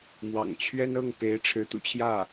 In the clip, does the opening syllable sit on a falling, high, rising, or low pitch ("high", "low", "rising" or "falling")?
low